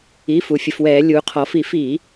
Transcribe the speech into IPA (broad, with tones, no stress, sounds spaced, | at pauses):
i˩˧˩ f u˩˧ fʲ ə˩˧ f w ɛː˧˩˧ lʲ uː˩˧ qʰ ɔ˩˧ f i˧˩˧ f iː˧˩˧